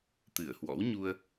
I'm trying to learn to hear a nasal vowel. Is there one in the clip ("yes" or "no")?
no